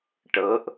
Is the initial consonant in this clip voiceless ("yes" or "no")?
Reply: yes